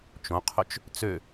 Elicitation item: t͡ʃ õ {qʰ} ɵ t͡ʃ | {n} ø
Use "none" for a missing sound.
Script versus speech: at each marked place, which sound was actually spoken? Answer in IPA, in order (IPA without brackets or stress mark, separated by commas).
qʰ, t͡s